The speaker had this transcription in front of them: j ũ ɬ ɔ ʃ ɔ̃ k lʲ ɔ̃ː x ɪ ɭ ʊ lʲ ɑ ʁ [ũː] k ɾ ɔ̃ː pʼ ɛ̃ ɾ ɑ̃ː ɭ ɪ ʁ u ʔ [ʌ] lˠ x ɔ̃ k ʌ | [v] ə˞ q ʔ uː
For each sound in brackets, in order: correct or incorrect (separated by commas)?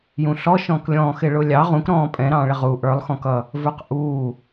incorrect, incorrect, correct